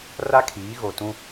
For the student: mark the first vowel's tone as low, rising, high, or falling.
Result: high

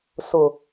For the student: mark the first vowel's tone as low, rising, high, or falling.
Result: low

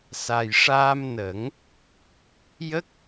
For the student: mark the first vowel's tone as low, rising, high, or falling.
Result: low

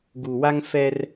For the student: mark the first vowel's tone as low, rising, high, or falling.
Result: low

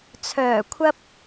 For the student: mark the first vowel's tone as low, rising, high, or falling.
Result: low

